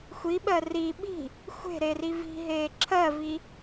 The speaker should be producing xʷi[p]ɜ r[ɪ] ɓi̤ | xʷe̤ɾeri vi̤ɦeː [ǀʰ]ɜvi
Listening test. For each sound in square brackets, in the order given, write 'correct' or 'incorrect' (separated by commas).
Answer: incorrect, incorrect, incorrect